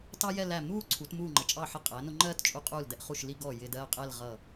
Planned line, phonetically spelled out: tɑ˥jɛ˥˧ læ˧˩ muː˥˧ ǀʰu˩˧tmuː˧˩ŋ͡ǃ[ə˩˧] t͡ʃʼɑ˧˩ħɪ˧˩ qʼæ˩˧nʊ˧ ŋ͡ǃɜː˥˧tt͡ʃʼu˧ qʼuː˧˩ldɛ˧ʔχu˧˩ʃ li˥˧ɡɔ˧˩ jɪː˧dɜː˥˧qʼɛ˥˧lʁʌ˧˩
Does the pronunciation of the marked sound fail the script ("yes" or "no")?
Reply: no